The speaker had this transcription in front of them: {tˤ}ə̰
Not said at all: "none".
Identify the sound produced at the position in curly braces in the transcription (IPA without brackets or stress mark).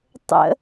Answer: tˤ